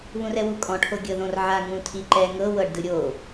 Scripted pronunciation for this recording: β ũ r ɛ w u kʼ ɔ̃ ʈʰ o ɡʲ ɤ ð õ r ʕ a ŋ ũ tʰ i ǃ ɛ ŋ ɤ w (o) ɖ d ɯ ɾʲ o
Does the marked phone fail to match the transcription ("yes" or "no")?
yes